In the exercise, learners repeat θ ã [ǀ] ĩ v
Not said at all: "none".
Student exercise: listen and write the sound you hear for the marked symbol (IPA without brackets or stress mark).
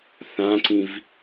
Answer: ǀ